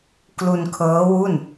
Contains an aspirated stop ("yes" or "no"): yes